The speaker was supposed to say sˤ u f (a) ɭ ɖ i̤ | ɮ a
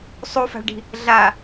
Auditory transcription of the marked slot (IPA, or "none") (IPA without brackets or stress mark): a̤